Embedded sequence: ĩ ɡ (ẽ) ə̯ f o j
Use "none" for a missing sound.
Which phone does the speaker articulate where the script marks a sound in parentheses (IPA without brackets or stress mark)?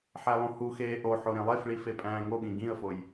ĩ